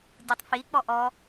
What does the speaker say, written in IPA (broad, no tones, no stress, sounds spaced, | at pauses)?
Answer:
dʲ u tˤ f i k͡p ɔ ʔ ɔ